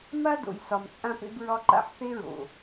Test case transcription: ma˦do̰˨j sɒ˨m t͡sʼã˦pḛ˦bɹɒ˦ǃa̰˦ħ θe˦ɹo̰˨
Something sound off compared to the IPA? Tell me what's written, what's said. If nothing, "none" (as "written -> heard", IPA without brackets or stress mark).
none